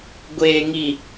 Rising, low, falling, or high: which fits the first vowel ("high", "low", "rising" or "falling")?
low